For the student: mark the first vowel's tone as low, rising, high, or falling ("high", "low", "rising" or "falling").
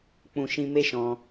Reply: low